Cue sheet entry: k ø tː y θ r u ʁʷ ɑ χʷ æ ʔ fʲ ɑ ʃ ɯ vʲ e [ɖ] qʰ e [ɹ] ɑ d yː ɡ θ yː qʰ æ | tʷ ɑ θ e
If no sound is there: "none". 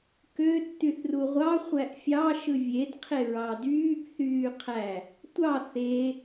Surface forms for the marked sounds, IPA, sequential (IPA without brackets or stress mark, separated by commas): d, ɹ